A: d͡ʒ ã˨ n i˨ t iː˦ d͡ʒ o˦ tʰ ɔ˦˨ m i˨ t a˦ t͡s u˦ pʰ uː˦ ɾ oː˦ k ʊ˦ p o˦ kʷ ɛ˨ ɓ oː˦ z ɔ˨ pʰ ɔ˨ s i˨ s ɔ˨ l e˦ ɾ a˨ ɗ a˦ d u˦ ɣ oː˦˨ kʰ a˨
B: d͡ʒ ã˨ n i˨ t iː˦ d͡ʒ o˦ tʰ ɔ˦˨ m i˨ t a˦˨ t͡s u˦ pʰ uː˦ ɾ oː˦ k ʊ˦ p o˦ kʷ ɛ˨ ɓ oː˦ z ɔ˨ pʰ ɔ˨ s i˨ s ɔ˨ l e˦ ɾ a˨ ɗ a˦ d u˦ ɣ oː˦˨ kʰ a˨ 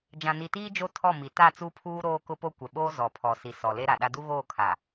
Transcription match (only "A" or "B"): B